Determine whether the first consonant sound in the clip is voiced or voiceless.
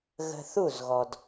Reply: voiced